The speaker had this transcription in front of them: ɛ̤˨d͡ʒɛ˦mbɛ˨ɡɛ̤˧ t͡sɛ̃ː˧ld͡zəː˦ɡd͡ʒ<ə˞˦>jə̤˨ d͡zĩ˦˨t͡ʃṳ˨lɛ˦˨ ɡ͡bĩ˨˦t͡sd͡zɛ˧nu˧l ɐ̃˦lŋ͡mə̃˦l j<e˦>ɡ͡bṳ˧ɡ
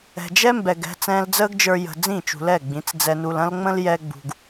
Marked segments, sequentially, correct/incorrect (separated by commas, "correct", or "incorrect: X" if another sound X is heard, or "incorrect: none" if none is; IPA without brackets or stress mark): incorrect: ə˞˧, incorrect: ɛ˦